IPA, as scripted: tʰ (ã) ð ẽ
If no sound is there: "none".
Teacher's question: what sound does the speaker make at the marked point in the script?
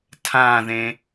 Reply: ã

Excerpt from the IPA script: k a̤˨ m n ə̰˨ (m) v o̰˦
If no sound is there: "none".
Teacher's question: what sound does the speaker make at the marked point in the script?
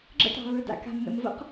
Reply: m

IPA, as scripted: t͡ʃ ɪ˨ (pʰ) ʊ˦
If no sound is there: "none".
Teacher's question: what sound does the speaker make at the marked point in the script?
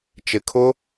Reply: kʰ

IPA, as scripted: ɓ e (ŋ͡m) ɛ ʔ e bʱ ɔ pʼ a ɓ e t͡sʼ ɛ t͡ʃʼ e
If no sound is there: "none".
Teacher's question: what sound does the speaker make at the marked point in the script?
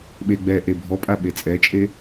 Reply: ɡ͡b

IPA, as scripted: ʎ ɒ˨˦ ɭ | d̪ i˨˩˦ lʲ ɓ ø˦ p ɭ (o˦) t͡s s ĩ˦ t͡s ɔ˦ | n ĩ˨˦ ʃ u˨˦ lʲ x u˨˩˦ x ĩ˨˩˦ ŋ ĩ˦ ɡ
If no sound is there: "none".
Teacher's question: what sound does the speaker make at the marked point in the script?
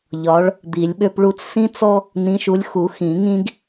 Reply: u˦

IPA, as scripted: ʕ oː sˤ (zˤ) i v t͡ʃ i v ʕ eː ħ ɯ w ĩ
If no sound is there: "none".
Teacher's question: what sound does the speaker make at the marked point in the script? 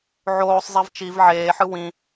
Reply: zˤ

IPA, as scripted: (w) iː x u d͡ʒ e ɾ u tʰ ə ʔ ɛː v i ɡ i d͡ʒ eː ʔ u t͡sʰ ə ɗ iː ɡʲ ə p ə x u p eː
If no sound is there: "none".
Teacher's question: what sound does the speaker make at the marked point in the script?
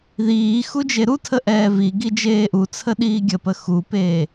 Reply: ð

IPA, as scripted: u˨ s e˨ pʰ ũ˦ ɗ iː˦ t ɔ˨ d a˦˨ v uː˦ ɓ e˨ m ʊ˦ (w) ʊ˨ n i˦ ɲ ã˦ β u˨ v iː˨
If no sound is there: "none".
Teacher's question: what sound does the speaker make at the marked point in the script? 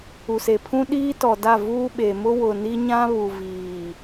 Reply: w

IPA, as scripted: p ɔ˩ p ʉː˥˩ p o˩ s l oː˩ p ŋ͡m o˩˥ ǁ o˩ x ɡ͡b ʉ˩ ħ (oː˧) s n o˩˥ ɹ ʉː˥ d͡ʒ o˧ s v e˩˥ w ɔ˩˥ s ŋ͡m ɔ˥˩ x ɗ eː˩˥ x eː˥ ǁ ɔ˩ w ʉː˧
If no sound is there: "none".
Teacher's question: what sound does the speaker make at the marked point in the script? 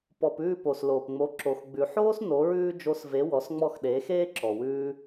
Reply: oː˥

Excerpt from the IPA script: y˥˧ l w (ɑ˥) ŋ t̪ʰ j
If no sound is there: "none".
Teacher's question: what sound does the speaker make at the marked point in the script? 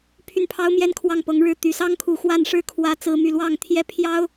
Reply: ɑ˥˩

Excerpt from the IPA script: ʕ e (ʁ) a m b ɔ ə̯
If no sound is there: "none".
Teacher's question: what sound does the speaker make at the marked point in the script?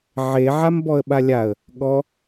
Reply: ʕ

